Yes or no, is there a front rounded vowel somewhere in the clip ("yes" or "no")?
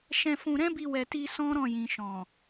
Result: no